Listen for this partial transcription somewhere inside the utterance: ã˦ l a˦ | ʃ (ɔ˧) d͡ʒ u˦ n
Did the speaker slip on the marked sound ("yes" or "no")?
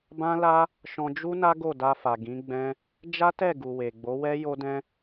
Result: yes